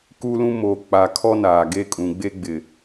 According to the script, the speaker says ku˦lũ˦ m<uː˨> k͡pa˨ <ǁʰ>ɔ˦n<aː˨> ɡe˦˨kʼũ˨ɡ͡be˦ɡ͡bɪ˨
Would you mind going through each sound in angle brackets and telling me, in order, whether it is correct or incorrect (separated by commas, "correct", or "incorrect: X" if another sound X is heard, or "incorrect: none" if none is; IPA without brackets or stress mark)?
incorrect: oː˨, incorrect: kʰ, correct